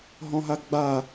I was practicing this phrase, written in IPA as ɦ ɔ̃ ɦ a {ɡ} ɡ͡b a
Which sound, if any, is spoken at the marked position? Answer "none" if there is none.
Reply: ɡ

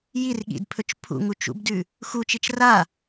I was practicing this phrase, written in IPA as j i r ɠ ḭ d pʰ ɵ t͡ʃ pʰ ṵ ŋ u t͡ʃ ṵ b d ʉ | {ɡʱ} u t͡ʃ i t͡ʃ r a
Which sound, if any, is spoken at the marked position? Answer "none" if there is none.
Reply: x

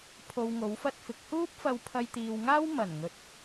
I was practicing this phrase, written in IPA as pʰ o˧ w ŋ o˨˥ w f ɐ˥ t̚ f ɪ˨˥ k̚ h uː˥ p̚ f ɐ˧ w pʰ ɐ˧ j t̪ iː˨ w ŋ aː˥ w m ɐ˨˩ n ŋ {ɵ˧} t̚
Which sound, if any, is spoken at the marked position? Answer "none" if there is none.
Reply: ɵ˨˥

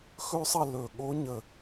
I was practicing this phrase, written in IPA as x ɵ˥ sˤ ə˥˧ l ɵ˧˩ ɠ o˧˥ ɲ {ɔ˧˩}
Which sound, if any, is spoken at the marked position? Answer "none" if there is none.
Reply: ə˧˩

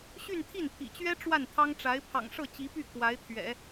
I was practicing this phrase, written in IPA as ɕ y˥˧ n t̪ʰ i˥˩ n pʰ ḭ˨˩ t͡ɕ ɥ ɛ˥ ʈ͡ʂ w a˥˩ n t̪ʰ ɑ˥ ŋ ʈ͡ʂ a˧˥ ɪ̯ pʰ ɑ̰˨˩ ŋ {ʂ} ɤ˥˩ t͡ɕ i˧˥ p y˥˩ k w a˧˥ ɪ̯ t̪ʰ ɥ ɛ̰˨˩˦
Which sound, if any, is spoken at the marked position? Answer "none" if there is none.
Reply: ʂ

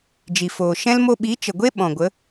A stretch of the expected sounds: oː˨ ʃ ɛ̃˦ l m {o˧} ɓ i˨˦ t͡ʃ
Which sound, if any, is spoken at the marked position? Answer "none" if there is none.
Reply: o˧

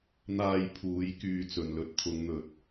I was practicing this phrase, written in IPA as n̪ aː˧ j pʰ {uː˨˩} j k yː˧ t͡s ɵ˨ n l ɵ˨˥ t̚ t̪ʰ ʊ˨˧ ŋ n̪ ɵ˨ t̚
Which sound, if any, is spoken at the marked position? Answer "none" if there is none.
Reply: uː˨˧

